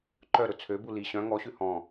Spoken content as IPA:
ǃœɾɵ t͡sʰøbu li ɕœ̃ ŋɔɕʉ hɔ̃

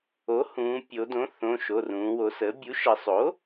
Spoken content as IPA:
o˩˥hũː˩˧pʲo˩˧dõ˩˥ θõ˩˧˩ ʃo˩˧˩rũː˩˧wo˩˧səː˩˥ bʲu˩˥ʃə˩˧sˤo˩˥

